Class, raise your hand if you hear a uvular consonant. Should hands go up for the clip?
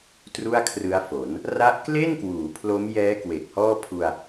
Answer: no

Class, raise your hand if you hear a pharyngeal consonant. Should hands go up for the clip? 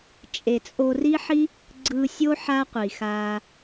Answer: yes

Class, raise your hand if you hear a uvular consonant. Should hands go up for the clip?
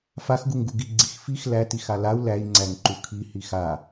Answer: no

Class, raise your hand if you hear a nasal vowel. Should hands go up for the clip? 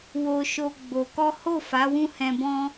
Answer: yes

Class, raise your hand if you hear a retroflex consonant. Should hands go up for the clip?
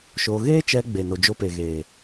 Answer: no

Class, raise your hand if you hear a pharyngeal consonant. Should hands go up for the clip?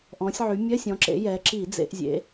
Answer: yes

